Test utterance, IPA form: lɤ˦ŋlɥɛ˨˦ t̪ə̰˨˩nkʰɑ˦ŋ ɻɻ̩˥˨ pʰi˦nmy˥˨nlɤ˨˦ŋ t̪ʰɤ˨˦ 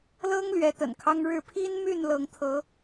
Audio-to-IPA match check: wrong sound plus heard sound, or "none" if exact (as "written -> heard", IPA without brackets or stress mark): none